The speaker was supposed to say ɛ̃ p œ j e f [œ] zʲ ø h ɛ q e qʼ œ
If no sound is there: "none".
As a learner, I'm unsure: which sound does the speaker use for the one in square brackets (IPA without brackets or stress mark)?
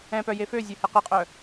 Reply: ø